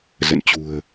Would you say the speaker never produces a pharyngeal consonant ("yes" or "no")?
yes